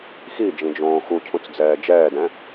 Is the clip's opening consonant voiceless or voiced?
voiceless